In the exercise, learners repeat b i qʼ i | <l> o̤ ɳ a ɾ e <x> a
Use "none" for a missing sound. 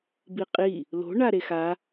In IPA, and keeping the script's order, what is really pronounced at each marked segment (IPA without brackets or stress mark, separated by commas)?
l, x